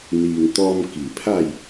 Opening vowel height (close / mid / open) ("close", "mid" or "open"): close